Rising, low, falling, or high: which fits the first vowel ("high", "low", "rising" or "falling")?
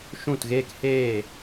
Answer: falling